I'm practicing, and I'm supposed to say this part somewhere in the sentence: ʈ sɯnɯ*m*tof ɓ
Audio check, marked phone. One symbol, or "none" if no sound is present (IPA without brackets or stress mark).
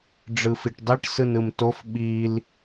m